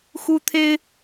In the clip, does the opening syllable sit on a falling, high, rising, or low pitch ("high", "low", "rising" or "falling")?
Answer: high